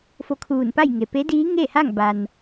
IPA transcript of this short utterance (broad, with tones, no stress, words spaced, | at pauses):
fo˧kʰuː˧˩n pa˥˨jŋe˩ pe˧˥diː˧˥ŋeː˥˨ha˥˨ŋ ba˩n